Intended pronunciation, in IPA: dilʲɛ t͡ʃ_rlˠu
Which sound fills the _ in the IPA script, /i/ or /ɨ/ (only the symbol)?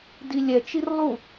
i